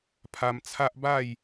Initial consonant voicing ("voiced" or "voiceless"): voiceless